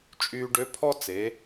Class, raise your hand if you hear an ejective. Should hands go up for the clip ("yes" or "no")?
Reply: yes